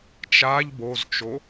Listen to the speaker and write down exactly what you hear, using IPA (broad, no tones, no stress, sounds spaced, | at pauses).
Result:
t͡ʃ a ʎ b o z t͡ʃ o